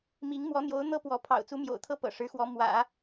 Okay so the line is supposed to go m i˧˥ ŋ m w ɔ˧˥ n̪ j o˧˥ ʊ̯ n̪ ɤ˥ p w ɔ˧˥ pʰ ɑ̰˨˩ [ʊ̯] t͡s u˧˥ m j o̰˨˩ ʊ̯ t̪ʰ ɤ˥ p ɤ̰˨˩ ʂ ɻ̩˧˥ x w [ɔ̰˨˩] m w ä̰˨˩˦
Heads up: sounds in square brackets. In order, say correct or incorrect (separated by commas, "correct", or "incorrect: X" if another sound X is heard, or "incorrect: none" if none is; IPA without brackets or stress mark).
correct, incorrect: ɔ˧˥